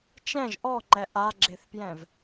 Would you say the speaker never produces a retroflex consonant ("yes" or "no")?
yes